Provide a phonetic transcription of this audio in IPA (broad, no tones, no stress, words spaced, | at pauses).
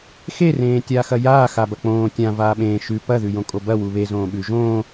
xerẽː tʲaːxɐjaː xabɐk͡põː tʲãvaː ɓẽː ʃʉ pɐðʉjõ kʼobɐ wuβe zõːɓʉ ʒõː